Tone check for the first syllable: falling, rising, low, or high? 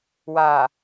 low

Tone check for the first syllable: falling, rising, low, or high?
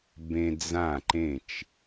high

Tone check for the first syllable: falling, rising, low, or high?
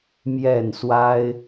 falling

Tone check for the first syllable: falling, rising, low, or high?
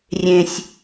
low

